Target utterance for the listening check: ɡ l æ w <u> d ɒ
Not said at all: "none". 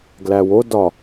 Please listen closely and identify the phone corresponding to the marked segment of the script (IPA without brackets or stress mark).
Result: o